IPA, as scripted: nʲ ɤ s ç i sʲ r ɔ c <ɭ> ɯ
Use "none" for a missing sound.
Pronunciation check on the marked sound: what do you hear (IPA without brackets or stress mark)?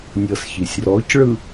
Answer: ɭ